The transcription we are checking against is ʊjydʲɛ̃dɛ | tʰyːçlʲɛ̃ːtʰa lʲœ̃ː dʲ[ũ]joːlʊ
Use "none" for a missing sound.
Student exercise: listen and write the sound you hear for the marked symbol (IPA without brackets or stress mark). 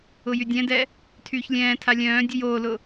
u